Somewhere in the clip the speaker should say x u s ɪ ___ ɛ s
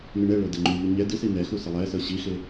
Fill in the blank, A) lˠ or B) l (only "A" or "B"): A